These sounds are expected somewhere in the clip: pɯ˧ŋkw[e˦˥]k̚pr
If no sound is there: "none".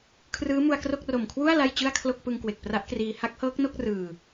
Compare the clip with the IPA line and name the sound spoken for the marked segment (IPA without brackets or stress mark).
e˨˩